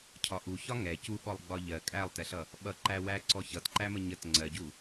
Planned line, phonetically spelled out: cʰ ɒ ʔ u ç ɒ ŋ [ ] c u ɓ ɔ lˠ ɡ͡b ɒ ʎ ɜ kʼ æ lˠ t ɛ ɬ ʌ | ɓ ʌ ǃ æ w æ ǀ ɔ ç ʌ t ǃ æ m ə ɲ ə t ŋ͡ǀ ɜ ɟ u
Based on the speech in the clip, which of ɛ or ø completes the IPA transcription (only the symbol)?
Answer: ɛ